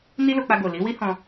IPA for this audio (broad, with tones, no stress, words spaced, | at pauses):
ni˦lo˧k͡pa˧ɡo˨ li˨˦wi˦hɔ̃˧